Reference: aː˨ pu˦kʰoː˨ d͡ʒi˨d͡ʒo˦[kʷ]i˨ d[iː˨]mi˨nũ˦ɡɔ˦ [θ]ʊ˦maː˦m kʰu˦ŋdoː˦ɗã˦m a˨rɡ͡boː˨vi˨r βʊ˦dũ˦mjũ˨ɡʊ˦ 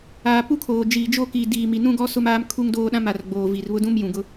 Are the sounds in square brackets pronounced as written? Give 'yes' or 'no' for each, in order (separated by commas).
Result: no, yes, no